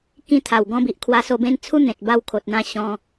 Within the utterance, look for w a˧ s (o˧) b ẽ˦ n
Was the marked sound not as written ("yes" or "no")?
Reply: no